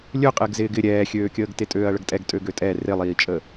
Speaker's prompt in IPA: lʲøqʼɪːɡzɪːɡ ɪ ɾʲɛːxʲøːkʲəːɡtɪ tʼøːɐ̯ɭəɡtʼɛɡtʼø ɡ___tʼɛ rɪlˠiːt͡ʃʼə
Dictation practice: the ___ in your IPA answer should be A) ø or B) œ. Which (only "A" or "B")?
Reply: A